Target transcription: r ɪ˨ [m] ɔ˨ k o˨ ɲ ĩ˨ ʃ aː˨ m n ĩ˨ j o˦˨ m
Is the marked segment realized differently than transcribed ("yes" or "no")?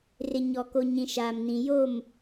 yes